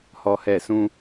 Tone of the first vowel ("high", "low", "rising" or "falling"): high